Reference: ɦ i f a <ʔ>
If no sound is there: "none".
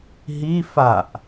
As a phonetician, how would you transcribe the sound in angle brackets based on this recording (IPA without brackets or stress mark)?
ʔ